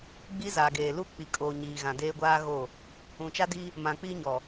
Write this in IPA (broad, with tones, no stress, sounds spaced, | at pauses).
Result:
ɡ͡b i˦ z aː˨ ɡ eː˨ l u˦ k͡p i˨ kʼ oː˨ ɲ iː˨ ɣ ã˨ d eː˦ ɡʷ aː˦ ɣ o˦˨ | ũ˨ t͡ʃ a˦ d i˦ | m ã˨ k͡p iː˦ ɲ ɔ˨